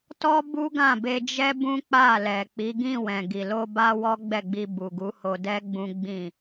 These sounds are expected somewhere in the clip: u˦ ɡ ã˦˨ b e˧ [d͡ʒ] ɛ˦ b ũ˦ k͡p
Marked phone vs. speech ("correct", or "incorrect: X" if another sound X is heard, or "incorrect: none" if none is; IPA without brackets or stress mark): correct